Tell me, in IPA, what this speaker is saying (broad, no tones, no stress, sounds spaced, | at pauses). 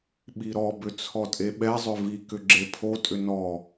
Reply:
ɓ i ɾ ɔ b ʏ t͡sʰ ɔ tʼ e ɓ ɛ zˤ ʏ v i k ʏ ɡ͡ǁ e pʰ o tʼ ʏ n ɔ